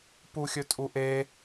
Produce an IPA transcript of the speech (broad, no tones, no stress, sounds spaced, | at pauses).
p u xʲ ɵ tʼ u ʔ e